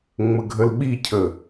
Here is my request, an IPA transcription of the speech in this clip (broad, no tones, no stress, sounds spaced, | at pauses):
ŋ͡m ə ɡʱ ə l ɓ i cʰ ə